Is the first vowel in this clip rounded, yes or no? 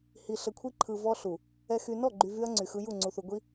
no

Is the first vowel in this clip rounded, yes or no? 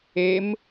no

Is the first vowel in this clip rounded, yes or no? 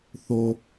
yes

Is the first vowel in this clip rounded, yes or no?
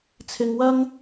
no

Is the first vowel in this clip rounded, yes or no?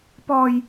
yes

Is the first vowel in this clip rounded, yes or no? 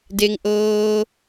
no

